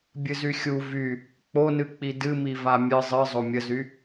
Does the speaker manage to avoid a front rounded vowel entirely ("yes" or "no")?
no